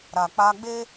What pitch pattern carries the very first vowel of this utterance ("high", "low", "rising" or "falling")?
low